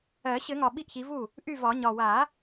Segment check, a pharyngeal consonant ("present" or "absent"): absent